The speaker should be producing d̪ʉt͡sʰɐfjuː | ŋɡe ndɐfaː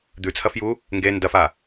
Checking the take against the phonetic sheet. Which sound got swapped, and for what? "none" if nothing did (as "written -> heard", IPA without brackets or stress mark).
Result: none